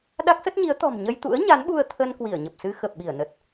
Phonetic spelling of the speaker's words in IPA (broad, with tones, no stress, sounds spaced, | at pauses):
ɗ a˦˥ k̚ s ə˦˥ t̚ ɲ i˨˦ ə̯ t̪ ɔ̤˨˩ m ɲ ə˧ j t̪ ṵ˧˥ ə̯ ɲ a˨˦ n ɓ u˧ ə̯ t̪ʰ ə˧ n k w i˧˩ ə̯ ɲ ə˨˩ p̚ s ɨ˧ x ə˨˩ p̚ ɓ i˧˩ ə̯ n ə˨˩ t̚